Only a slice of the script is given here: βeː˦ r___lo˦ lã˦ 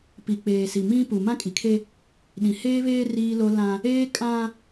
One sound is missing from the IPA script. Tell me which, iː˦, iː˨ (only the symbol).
iː˦